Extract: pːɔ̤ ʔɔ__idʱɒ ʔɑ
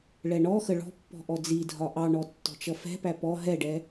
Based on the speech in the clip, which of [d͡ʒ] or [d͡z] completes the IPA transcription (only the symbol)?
d͡z